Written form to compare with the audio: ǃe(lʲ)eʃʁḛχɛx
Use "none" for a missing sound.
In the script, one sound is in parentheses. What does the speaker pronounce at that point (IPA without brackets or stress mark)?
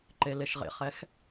l